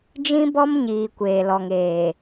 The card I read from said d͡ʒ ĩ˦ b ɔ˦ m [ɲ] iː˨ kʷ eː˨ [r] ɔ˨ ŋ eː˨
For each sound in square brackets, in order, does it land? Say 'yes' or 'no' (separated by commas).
yes, no